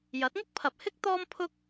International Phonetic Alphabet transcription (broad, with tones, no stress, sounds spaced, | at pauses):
j ɐ˨˥ t̚ ŋ ʊ˥ k̚ pʰ ɐ˨ p̚ h ɪ˥ k̚ t̪ ɔː˥ m pʰ ʊ˥ k̚